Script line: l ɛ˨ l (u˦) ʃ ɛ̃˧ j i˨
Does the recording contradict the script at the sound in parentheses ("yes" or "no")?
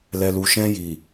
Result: yes